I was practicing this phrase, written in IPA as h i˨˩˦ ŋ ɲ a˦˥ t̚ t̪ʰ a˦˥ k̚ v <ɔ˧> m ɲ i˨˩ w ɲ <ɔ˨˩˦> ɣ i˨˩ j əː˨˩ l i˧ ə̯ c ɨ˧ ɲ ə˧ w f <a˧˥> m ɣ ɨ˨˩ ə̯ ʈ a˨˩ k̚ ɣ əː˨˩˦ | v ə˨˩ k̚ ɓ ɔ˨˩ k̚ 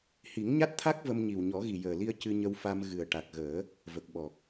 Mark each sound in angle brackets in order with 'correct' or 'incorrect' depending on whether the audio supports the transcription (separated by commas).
incorrect, correct, incorrect